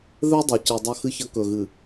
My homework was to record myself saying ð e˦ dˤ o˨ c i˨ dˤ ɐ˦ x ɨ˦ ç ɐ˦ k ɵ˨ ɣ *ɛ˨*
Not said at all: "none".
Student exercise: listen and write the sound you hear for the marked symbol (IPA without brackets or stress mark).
ɨ˨